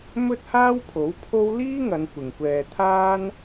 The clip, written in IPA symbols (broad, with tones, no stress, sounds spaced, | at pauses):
m ɵ˥ t̚ h aː˥ w pʰ o˨˥ w pʰ o˥ w l iː˥ ŋ ɐ˨˧ n kʷ ɪ˨ ŋ kʷ ɛː˧ t̪ʰ aː˥ n